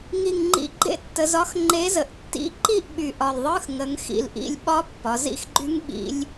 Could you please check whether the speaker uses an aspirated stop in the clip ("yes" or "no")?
no